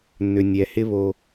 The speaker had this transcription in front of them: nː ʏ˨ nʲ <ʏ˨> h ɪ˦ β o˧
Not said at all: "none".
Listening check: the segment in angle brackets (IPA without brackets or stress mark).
ɛ˨